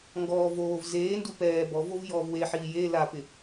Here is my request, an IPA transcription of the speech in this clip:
ŋ ɡ ɔː v oː v z eː n d u p ɛː b ɔ v o v j ɔː v w e ħ iː j e l a p ɪ

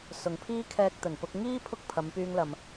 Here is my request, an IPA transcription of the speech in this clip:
s ʊ˨ ŋ pʰ iː˥ kʰ ɛː˧ k̚ t̪ ɵ˨˩ n p ʊ˧ k̚ ŋ iː˥ pʰ ʊ˥ k̚ pʰ ɐ˨˧ m p yː˧ ŋ l ɐ˨ m

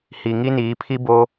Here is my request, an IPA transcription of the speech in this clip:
h i˨ ŋ i˦ n iː˨˦ pʰ i˦ b o˦

